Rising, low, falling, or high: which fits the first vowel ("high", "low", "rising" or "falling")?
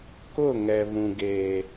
falling